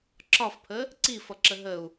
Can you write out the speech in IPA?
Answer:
ǁ ɒ f pʰ ə | ǀ i f ʌ ǁ ə ɦ ə u̯

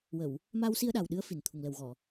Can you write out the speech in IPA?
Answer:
w ə˨˩˨ w | m aː˧ w s i˧ ə̯ ɗ a˨˩ w ɗ ɨ˧˥ ə̯ f i˨˩ n t̪ʰ u˨˩ ŋ l ə˨˩ w ɣ ɔ˨˩˨

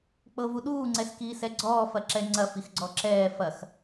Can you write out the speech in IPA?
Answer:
k͡p ɤ v u ɗ uː ŋ͡ǀ ɛ s k iː s ɛ ɡ͡ǀ ɔː f ɐ ǁ ɛ ŋ͡ǀ ɐ f i x ɡ͡ǀ ɔ ǁ ɛː f ɐ x

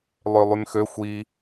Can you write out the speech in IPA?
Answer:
lˠ ø lˠ y m x ø xʷ i

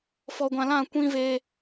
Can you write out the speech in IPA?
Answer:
f ɔ˨ ɡʷ ã˨ l ã˦˨ kʷ ĩ˦ v e˦

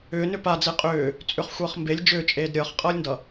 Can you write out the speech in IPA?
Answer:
ʏː n ʏ p a d͡z e qʼ ʏː | t͡sʼ ʏ χ xʷ ʌː χ m b e lʲ d͡ʒ ʏː t͡ʃʼ eː d ɾʲ ʌː χ qʼ ʌː lʲ n d ʌ

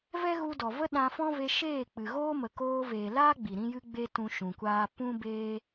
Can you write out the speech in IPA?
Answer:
v ɛ˦ ɣ u˧ d ɔ˨ v ə˦ ɗ ã˧ f ɔ̃˦ v e˧ ʃ eː˦˨ k͡p ɨ˨ ɣ oː˦ m ə˨ k oː˧ v eː˨ l aː˦ ɡ͡b i˨ ɾ ĩ˦ j ɨ˦ ɡ͡b e˦ t ũ˧ ʃ ũ˨ kʷ aː˧ p ũ˦ b eː˦

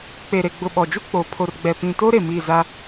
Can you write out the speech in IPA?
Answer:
k͡p e˨ ɾ e˨ ɡ͡b ʊ˨ ɓ ɔ˨ d͡ʒ u˦ k͡p oː˨ pʰ o˨ r ɡ͡b ɛ˨ p ĩ˨ t o˦ ɾ e˨ m i˦˨ z a˦

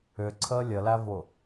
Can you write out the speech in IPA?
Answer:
ʏ ǀʰ əː lʲ ə l æ v ʊ

